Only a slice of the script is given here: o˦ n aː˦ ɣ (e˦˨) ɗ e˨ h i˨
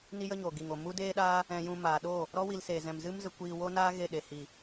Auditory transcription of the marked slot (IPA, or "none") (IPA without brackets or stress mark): e˦˨